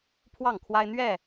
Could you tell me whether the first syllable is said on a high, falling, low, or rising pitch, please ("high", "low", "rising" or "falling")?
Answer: falling